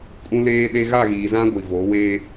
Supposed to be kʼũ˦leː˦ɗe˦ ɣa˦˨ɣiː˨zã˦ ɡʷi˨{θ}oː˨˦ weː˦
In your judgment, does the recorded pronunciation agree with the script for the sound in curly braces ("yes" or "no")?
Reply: no